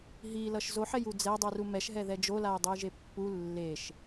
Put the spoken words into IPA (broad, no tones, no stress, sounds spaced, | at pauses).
ɦ i l ʌ ʃ z o ħ ɛ j u d͡z ɛ dˤ u r u m ɛ ʃ ɦ ɛ ð ɛ d͡ʒ o l a j dˤ ɯ j ʒ e pː u lː e ʃ